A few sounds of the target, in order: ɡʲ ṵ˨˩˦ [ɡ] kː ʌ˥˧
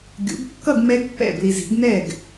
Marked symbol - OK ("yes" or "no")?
yes